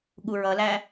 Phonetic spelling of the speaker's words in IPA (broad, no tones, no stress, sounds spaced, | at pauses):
ɠ u ɹ ʌ l æ